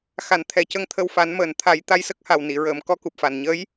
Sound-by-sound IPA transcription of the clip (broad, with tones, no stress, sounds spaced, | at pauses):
x a˨˩˦ n t̪ʰ ɛ˨˩˦ c ə˧ ŋ t̪ʰ ə˧ w f a˨˩˦ n m əː˨˩ n t̪ʰ a˨˩˦ j t̪ a˧ j s ə˦˥ k̚ h a˨˩ w n i˨˩˨ ɹ əː˨˩˨ m k ɔ˧˥ k u˨˩ p̚ f a˨˩ n ɲ ə˧˥ j